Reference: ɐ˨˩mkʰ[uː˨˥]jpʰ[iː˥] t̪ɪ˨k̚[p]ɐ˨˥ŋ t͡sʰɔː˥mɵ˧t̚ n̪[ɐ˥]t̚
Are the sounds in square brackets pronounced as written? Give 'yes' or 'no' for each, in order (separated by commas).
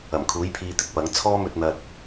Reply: yes, no, yes, no